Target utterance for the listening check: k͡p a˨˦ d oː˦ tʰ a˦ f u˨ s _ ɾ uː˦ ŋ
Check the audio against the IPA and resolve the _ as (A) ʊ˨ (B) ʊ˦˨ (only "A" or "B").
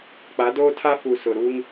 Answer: A